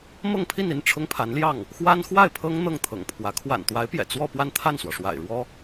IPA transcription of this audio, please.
m ɤ˥˧ ŋ pʰ i˥˧ n i˥˩ n ʈ͡ʂʰ ʊ˥ ŋ pʰ a˧˥ n l j ɑ˥˩ ŋ | x w a˥ n x w a˥˩ ɪ̯ pʰ ɤ˥ ŋ n̪ ɤ˥˩ ŋ t̪ʰ ɤ̰˨˩ ŋ pʰ w ä˧˥ kʰ w a̰˨˩ n t̪ w a˧˥ ɪ̯ p j ɛ̰˨˩ t͡s w ɔ˥˧ p w a˥˧ n t̪ʰ a˥˩ n s w ɔ˩ ʂ w a̰˨˩ ɪ̯ ɻ w ɔ˥

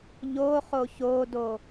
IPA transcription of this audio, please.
ʎ o χ o ç o d o

